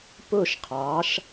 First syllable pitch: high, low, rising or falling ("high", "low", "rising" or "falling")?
falling